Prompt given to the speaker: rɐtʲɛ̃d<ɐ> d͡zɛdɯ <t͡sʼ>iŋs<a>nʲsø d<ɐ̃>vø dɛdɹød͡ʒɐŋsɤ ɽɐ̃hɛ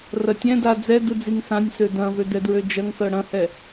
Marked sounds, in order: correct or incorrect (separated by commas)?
incorrect, incorrect, incorrect, correct